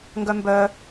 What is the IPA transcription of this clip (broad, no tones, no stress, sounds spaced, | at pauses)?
ŋ ɡ œ m b œ